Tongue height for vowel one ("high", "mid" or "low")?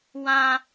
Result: low